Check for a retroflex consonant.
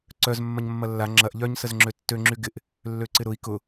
absent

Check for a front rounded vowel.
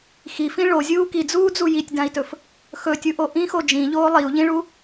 absent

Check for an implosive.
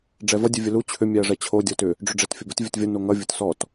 absent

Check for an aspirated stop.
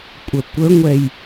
absent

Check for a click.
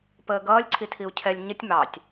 present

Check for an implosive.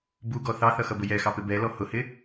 absent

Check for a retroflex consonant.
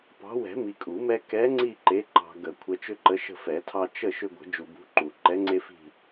absent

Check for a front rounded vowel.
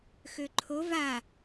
present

